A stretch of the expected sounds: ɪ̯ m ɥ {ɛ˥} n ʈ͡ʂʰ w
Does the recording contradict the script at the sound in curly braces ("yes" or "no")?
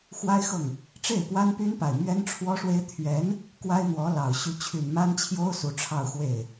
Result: no